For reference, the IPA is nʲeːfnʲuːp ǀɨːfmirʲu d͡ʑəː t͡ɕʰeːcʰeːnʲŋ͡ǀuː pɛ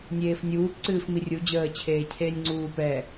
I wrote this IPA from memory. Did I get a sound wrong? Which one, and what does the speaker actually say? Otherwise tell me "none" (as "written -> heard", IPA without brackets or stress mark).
none